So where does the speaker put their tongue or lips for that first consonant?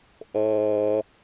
throat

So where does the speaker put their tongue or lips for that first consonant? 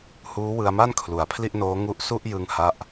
throat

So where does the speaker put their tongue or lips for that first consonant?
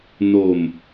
tongue tip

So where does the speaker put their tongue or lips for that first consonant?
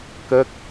velum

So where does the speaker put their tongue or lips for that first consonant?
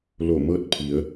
tongue tip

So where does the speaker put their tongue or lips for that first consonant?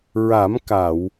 tongue tip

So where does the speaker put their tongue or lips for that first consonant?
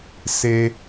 tongue tip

